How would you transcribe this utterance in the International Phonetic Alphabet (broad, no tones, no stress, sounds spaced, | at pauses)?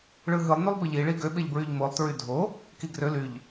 ɭ ɯ ɦ ɯ lˠ n y lˠ b e ʎ i ɭ i ɡ ø ɓ e ʎ b ɹ y ʎ m o lˠ t ɹ y dʱ o | k i ɡ r ø l y ʎ